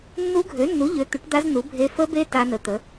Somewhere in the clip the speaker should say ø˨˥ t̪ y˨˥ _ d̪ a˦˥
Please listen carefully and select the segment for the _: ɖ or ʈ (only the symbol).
ʈ